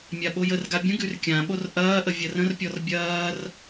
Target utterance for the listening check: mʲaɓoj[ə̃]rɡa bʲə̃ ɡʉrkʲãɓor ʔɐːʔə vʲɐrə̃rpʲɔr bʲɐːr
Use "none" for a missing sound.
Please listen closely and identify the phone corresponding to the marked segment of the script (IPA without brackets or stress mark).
ə